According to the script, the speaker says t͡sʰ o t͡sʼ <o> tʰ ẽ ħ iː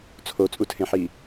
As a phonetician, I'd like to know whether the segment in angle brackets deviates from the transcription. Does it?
yes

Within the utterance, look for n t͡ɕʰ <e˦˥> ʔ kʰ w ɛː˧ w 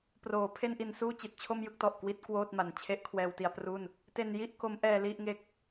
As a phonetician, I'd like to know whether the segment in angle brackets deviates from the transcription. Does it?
no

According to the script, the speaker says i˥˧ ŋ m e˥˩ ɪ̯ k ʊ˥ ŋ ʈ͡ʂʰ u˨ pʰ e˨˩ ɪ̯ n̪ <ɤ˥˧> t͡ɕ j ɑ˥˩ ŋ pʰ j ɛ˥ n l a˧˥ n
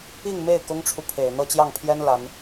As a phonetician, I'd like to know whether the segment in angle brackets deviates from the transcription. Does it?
no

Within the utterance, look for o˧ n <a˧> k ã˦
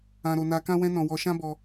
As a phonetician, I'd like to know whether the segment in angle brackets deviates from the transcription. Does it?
no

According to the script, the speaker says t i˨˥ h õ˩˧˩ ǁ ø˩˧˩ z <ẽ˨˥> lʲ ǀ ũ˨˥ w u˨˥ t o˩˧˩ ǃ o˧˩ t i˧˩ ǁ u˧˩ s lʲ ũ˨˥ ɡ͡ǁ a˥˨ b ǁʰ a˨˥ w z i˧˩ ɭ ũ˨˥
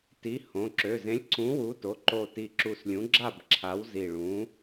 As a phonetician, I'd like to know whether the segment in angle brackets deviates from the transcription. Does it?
no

